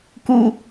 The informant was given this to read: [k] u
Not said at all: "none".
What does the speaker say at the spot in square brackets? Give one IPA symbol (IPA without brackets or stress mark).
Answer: k